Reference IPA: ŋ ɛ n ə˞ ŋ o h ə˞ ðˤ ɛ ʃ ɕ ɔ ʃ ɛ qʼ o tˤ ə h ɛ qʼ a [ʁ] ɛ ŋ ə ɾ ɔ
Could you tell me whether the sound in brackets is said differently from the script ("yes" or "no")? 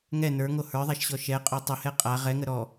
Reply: no